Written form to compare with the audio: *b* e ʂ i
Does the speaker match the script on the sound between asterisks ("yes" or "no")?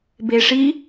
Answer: yes